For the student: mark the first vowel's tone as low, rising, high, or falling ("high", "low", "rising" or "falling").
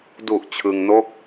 low